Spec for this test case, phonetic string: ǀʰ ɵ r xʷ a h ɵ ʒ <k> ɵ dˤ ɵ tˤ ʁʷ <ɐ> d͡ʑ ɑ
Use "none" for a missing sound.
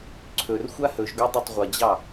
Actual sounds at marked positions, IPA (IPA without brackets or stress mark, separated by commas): ɡ, ɐ